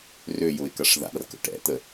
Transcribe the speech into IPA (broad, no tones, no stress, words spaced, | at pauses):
røjʊɪ̯ kɐʂða̰rkə̰ ʈɛ̰t̪ə